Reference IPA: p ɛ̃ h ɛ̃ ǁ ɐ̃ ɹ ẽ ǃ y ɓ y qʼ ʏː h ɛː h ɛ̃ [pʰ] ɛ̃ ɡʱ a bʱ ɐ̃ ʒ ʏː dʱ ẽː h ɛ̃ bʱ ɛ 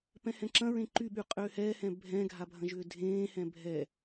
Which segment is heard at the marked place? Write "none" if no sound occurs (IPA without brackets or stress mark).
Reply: bʱ